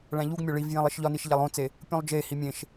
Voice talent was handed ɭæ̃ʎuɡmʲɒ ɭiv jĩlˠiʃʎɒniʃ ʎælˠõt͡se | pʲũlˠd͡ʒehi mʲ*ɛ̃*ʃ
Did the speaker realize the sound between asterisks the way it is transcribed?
no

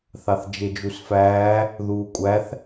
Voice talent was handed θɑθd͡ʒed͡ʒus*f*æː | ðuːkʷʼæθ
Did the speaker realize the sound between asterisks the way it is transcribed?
yes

